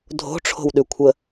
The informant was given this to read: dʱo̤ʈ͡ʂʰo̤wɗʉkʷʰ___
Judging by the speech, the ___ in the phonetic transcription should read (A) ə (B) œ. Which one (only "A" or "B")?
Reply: A